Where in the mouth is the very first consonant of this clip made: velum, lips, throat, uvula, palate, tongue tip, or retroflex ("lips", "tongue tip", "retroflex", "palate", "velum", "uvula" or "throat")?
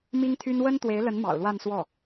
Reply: lips